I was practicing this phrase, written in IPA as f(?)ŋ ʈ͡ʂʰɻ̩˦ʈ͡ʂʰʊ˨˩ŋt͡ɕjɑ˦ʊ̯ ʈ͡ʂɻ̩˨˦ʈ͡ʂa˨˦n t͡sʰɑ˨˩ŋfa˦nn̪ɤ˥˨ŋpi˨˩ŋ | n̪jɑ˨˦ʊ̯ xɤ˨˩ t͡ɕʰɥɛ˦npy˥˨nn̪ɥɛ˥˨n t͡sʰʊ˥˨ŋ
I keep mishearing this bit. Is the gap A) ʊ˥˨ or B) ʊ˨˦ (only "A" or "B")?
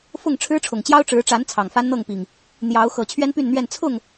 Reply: A